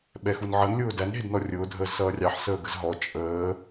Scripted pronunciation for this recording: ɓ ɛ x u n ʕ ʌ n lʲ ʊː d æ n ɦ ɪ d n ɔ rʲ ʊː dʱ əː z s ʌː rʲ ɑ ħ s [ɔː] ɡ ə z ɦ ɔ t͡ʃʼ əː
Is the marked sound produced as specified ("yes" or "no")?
no